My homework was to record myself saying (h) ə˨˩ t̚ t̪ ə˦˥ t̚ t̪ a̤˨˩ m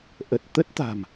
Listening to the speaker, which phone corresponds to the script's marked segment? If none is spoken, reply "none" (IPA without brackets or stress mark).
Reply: ʔ